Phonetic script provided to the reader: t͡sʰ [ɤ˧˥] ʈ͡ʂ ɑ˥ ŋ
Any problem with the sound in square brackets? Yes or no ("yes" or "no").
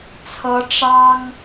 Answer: no